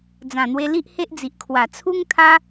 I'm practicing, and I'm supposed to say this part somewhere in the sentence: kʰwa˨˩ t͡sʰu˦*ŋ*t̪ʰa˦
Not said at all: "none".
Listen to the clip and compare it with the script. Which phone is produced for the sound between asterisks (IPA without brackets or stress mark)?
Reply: ŋ